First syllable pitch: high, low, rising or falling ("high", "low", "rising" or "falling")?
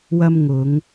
high